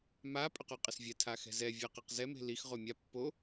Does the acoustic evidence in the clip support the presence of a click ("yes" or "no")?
no